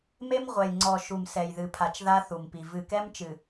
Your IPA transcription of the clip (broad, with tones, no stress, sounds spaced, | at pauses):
m e˦ m ʁʷ ɛ˨ j ŋ͡ǀ ɔ˨ ʃ u˨ m s ɛ˨ j ð ɨ˨ pʰ a˨ t͡ʃ ð a˦ θ u˨ m p i˨ v ɨ˨ k ɛ˦ m t͡ʃ ɨ˨